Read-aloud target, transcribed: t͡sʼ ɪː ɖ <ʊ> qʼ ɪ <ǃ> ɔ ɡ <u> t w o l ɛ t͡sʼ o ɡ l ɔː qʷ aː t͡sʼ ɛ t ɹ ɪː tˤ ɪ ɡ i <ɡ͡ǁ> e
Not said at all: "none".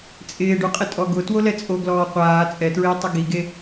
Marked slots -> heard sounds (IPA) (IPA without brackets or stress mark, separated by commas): u, tʼ, ʊ, ɡ